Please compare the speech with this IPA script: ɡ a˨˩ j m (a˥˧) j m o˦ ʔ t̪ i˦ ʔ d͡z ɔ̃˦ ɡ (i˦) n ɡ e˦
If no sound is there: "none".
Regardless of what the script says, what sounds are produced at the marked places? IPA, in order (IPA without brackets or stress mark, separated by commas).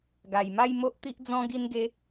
a˥˧, i˦